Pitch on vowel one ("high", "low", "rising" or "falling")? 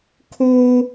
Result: high